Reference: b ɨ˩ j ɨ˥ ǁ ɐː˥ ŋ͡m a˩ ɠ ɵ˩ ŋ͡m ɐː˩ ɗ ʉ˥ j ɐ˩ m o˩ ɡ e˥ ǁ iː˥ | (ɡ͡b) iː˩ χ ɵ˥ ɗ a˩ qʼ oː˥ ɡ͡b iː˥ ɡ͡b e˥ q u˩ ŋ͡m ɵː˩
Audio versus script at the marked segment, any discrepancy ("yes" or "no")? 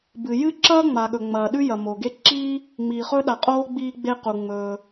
yes